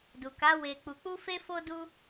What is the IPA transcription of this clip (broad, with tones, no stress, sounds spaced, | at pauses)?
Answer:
d u˨ k a˨˦ w e˧ k͡p u˧ k͡p u˦ f e˦ f o˦ d u˦